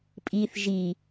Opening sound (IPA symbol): pʼ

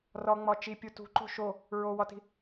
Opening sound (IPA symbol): r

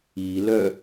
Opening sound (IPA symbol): i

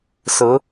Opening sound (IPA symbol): s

